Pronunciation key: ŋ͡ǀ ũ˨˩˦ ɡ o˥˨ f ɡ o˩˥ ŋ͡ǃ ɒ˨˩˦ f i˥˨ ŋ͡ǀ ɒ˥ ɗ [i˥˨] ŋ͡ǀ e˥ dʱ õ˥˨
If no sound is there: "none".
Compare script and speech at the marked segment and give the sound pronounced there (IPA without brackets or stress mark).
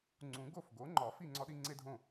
i˥